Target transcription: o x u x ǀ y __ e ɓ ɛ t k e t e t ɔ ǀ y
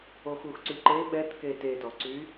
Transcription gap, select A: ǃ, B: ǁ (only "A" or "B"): A